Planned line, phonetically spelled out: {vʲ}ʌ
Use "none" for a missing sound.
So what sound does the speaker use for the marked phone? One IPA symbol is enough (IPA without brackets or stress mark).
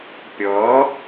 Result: pʲ